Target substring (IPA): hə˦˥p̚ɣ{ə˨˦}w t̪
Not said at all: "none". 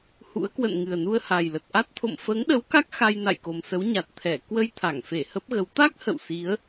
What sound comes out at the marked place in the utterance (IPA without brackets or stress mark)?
ə˨˦